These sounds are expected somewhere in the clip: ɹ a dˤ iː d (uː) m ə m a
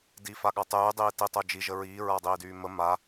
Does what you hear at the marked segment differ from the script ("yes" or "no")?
yes